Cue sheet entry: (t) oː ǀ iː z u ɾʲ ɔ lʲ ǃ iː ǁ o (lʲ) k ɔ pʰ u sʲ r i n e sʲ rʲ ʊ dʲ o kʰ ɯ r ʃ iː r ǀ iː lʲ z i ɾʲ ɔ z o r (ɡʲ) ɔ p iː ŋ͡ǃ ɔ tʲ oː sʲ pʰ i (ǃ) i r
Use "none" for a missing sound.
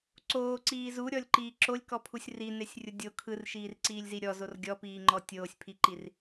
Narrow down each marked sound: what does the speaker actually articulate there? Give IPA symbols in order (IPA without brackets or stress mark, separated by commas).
ǀ, lʲ, ɡʲ, ǃ